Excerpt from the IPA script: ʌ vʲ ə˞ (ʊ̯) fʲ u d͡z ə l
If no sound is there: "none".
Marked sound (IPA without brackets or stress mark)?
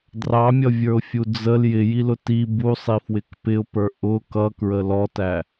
ʊ̯